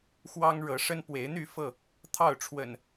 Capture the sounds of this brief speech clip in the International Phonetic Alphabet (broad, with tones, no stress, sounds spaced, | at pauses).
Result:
x w ɑ˦ ŋ ɻ ɤ˨˦ ʂ ə˦ n p w e˨˦ ɪ̯ n̪ y˥˨ f ɤ˥˨ | t̪ʰ ɑ˥˨ ʊ̯ ʈ͡ʂʰ w ə̰˨˩ n